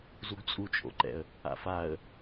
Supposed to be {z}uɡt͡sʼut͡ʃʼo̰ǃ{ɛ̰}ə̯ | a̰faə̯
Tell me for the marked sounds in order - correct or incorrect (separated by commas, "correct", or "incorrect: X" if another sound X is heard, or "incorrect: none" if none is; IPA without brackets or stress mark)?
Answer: correct, correct